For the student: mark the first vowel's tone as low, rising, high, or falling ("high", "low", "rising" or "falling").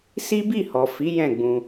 high